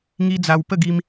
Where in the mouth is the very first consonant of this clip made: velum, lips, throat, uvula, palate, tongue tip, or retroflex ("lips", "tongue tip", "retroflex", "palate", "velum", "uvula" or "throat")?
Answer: velum